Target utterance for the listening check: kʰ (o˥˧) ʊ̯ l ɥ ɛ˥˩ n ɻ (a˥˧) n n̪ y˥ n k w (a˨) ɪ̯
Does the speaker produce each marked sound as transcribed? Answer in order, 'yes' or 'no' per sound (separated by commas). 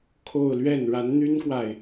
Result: yes, no, yes